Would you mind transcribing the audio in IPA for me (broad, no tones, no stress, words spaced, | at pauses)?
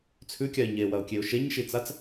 t͡sʰʉkʲaɪ̯ ɲewɐʊ̯kʲeʊ̯ ʃeɲʃit͡sat͡s